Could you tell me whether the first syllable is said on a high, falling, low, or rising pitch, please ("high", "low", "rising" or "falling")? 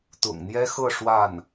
low